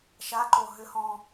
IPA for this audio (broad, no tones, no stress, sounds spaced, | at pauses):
ʃ a ǃ o ɦ ʏ h ɔ̃